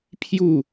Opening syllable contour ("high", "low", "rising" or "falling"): falling